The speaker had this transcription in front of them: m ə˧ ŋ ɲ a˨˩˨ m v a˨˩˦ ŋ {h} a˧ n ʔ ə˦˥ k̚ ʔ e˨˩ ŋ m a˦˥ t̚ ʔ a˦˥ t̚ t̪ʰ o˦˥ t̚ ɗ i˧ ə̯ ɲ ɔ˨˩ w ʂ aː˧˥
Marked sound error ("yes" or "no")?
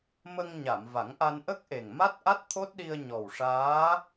yes